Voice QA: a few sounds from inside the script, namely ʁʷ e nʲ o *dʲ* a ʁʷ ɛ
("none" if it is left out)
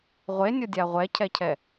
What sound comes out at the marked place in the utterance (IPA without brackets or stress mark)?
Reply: dʲ